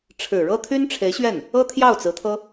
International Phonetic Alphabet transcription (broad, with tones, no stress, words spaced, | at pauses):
ʈ͡ʂʰɻ̩˨˩ɻɤ˥ t̪ʰy˥nʈ͡ʂʰe˧˥ɪ̯ɕɥɛ˥˩n | ɤ˥t̪ʰjɑ˥˩ʊ̯t͡sɹ̩˧˥t̪ʰɤ˥